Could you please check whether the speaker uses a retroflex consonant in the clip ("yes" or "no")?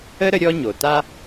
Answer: no